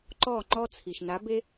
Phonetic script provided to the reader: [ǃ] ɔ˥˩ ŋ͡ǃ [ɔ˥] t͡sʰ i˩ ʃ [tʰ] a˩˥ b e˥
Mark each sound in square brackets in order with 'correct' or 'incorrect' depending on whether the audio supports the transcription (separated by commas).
correct, correct, incorrect